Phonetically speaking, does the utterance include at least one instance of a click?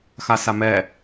no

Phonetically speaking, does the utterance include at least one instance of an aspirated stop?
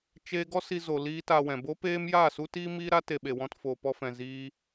no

